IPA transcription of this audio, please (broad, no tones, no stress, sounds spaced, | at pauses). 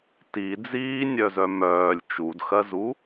t i d͡z iː nʲ œ z œ m œː lʲ t͡ʃ u d x ɜ z u